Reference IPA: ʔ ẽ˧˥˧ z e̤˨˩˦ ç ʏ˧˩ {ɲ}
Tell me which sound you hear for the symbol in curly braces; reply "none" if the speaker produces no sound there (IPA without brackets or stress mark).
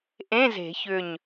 ɲ